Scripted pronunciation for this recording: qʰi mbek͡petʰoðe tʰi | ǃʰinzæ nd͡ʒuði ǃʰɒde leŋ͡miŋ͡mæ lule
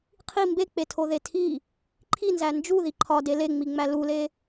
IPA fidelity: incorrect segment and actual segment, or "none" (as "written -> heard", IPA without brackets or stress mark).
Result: none